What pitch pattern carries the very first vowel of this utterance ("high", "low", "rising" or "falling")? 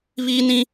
high